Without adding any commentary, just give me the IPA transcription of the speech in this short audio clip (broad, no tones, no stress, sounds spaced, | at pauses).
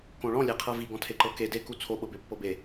k õ ɭ ɔ̃ lʲ e qʰ ɤ v i ɡ ɔ̃ tʰ e ǃ ɤ k e d e k u t͡sʰ o ɓ ɤ b e pː ɤ b e